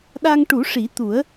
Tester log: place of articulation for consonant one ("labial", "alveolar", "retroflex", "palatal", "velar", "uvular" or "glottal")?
alveolar